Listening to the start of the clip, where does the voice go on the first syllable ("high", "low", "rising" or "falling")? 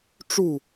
falling